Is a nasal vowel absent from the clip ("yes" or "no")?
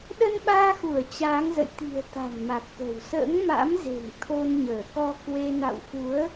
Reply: yes